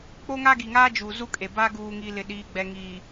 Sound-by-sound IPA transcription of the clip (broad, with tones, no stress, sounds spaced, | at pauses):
k͡p o˦ ŋ a˦ ɡ i˨ ŋ aː˦ d͡ʒ uː˨ z u˦ kʼ e˨ b aː˦ ɡ uː˨ ŋ i˨ l ɪ˨ ɗ iː˨ ɡ͡b ɛ˨ ŋ iː˨